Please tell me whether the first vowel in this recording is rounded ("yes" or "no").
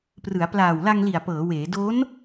no